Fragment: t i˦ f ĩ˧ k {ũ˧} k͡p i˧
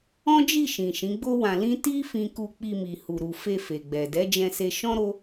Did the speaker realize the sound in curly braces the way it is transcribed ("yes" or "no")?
no